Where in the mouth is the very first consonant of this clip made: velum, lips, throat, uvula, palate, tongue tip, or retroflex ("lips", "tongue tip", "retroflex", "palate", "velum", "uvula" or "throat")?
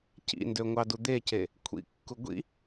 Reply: palate